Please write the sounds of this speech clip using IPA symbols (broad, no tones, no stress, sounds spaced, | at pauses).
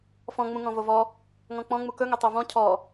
f ɔ̃ ŋ͡m ũ ŋ ɔ̃ v o v ɔ | ŋ ɔ̃ k͡p ɔ̃ ŋ͡m u k ɵ ŋ ɵ tˤ o v ɔ̃ cʰ ɔ